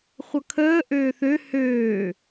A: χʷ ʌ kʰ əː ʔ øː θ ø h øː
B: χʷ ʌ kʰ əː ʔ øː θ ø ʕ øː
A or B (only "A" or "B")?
A